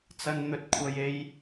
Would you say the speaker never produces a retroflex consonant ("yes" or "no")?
yes